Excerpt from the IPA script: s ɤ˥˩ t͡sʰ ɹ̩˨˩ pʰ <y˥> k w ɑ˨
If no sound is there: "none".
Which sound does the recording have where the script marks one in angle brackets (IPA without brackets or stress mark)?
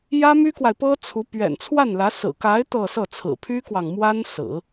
y˥